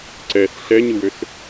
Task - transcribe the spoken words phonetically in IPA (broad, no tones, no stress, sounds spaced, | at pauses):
ǀ ɛ s ɬ ɛ ɲ ɯ w ø s